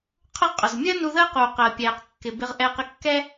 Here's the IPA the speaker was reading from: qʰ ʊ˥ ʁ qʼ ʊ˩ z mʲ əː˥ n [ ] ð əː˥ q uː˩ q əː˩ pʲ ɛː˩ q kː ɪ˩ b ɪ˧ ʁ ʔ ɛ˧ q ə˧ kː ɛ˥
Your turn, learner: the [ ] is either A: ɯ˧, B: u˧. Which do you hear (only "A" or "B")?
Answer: B